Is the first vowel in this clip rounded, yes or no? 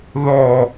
yes